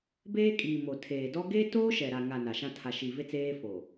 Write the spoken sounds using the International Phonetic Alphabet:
beː˦kʼiː˨ mo˨tʰeː˨dɔ˦ ɡeː˦toː˦ʃɛ˨ɾa˨ ŋa˨ na˨ʃã˦ tʰa˨ʃi˨ ve˦t͡seː˦ fo˨

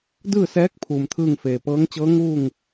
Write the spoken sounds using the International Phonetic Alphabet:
dɯː˥˨sɛː˧˥k̚ pʰuː˩mt̪ʰɯː˥˨ŋfeː˩ pɤː˧˥ŋt͡ɕɤː˧˥ŋuː˥˨ŋ

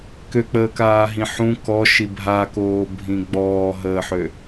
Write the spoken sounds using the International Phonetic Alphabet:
køk͡pəːkaːɦĩ ħũ kɔʃi bʱakoːbʱĩ ɡ͡bɔːɦəːħø

